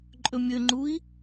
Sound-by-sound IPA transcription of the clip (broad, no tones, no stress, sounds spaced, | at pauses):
ǃʼ ɵ mʲ ɵ ŋ͡ǃ u i̯